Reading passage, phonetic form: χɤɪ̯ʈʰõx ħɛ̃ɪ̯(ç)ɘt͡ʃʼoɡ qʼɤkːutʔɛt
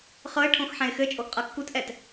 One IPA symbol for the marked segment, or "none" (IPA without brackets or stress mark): x